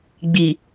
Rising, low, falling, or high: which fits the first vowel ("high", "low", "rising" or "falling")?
low